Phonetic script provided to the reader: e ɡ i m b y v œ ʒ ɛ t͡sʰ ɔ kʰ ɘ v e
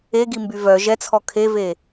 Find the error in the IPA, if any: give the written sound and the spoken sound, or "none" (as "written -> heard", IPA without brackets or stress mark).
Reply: ɘ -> e